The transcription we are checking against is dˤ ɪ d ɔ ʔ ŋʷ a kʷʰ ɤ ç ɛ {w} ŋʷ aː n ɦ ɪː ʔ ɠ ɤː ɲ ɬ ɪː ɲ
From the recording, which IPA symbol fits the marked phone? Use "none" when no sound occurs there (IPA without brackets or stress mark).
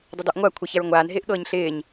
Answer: ɹ